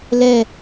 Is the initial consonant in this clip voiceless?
no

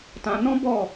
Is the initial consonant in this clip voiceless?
yes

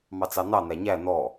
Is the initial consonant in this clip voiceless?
no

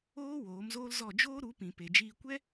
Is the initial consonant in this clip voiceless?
no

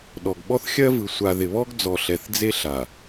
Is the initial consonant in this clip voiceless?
no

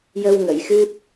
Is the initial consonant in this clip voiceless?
no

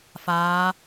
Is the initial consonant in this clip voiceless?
yes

